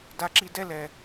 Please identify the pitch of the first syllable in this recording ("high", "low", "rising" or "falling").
low